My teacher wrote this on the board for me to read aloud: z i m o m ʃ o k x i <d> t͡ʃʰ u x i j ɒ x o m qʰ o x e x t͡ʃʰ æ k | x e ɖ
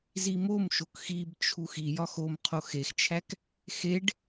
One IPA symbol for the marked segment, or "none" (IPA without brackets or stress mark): b